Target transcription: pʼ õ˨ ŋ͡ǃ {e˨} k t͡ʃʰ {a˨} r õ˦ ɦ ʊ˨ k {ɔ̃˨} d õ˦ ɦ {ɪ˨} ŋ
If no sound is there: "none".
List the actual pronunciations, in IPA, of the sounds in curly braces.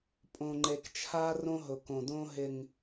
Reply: e˨, a˦, õ˨, ɪ˨

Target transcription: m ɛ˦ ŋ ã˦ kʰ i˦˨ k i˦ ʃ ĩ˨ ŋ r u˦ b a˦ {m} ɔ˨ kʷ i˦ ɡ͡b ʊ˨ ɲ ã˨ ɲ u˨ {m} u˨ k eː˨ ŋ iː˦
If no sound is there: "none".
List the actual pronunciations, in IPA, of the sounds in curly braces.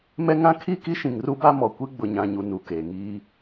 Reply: m, n

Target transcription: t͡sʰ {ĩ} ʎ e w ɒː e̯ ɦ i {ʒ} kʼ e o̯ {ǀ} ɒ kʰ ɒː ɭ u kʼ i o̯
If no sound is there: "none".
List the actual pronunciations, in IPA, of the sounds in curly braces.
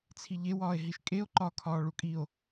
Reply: i, ʃ, ǃ

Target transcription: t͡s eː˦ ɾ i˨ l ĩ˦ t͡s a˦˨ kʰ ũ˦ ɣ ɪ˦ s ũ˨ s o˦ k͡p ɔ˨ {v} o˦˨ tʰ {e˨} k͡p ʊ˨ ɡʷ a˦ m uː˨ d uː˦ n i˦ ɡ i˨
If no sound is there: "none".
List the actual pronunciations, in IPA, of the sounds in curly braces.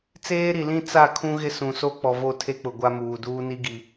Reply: v, e˦

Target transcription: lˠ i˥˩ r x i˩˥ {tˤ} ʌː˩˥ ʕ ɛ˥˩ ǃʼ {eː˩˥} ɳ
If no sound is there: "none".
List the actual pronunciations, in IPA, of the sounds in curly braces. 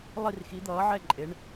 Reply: d̪, e˩˥

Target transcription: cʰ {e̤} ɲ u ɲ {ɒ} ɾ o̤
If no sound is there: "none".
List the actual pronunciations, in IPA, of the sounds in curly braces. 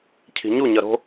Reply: i̤, ʌ

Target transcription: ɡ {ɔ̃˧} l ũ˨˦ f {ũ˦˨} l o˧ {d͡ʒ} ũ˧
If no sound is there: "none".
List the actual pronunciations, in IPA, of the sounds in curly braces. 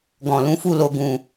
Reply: ɔ̃˨, u˦˨, ɡ

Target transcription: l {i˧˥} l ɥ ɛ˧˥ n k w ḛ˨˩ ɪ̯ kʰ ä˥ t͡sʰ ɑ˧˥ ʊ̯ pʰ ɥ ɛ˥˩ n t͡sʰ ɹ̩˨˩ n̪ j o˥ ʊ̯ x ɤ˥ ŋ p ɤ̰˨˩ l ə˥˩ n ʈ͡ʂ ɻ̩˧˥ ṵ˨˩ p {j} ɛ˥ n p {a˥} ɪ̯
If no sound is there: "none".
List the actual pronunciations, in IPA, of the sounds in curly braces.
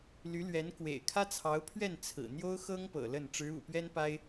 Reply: y˧˥, ɥ, a˥

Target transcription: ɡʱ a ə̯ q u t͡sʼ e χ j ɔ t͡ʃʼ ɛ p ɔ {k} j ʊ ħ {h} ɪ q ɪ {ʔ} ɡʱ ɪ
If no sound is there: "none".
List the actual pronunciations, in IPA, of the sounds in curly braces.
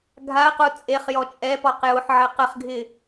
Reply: q, ʕ, χ

